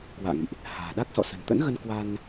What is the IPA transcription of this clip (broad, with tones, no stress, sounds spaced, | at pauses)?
k w a̰ː˧˨ ŋ ḭ˧˨ ʔ | h a̤ː˨˩ ɗ a˦˥ k̚ s ɔ̰˧˨ s ə̤˨˩ n t̪ ə̰˧˥ n ɣ ə˧ n k w a˧ n